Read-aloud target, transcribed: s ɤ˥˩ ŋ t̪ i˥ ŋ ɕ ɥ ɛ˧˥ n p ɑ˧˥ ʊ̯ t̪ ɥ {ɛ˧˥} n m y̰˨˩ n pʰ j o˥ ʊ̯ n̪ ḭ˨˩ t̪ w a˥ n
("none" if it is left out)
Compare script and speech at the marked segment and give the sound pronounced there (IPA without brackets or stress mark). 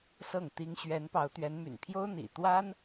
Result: ɛ˧˥